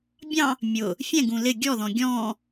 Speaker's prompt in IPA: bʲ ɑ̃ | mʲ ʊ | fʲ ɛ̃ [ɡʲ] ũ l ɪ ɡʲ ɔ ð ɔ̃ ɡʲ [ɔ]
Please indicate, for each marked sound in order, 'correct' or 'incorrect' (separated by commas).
incorrect, incorrect